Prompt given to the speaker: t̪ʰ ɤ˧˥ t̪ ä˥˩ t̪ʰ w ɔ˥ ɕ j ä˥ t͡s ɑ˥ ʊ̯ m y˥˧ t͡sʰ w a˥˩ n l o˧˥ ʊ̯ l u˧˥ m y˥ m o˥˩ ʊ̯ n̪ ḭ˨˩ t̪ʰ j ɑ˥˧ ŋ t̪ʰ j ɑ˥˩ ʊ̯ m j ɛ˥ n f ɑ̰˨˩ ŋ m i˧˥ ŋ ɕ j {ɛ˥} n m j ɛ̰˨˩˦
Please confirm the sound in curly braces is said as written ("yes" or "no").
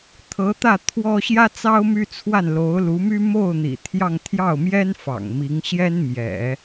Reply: yes